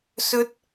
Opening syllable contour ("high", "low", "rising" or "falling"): high